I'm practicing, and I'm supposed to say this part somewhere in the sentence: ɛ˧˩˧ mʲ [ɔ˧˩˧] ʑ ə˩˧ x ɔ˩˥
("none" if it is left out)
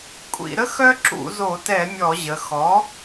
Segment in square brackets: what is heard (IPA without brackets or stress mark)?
ɔ˧˩˧